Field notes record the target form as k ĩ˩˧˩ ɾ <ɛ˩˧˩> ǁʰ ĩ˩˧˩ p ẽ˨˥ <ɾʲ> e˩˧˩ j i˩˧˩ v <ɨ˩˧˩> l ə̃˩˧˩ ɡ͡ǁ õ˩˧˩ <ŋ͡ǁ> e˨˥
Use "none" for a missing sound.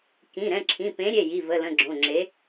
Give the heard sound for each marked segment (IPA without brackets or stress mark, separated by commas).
ɛ̃˩˧˩, ɾʲ, ə˩˧˩, ŋ͡ǁ